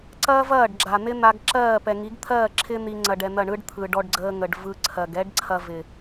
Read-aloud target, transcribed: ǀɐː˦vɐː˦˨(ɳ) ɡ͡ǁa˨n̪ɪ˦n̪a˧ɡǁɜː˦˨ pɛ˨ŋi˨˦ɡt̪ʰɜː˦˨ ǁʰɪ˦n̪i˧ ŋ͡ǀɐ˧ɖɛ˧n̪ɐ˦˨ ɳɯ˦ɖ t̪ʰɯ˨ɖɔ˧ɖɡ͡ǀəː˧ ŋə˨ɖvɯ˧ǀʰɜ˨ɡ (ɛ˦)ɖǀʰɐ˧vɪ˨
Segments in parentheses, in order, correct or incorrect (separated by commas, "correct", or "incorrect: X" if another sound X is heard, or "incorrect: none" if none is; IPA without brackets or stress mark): incorrect: ɖ, correct